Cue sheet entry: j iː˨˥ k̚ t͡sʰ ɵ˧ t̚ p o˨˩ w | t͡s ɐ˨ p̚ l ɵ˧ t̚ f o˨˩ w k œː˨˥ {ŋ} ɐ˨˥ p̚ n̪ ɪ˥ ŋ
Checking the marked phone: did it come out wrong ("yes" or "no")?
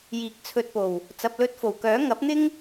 no